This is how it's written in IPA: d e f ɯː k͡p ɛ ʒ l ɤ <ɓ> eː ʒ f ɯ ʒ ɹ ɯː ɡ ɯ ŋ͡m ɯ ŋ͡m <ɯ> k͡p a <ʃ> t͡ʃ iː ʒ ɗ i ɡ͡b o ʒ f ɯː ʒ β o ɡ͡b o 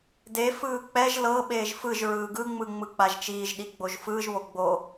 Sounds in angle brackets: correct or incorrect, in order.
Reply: correct, correct, incorrect

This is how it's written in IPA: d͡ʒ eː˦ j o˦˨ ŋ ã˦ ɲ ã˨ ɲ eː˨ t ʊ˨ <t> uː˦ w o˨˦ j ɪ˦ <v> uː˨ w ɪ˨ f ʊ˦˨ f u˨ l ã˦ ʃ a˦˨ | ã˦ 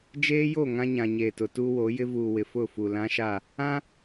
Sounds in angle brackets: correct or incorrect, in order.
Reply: correct, correct

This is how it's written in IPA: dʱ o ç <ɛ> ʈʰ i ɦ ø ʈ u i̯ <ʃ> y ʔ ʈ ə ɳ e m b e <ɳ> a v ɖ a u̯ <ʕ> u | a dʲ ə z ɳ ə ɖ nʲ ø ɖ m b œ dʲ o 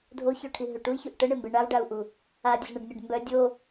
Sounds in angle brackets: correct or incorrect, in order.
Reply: incorrect, incorrect, correct, incorrect

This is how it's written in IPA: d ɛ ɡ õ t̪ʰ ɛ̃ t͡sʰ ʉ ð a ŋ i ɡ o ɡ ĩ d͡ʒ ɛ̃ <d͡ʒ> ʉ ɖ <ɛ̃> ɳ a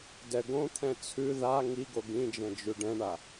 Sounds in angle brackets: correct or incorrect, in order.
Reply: correct, correct

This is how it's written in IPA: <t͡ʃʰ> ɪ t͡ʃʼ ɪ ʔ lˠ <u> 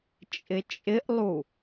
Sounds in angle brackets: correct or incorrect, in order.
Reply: incorrect, correct

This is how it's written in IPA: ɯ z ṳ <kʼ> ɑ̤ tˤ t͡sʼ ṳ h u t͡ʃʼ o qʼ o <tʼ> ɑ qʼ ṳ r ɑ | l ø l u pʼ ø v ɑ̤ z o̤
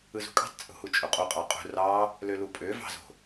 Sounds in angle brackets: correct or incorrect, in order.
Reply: correct, incorrect

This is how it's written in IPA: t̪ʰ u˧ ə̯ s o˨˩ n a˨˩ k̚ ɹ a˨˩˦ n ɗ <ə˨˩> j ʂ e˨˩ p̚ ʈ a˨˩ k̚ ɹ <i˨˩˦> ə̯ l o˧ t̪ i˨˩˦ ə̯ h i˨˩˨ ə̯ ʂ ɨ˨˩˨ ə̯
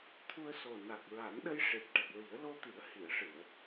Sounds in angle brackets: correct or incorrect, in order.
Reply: incorrect, correct

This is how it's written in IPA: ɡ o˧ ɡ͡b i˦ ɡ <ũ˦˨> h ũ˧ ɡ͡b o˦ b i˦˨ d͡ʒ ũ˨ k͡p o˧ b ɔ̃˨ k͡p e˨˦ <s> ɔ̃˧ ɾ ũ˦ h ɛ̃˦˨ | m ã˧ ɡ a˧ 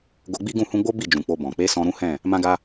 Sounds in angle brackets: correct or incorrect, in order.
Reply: correct, correct

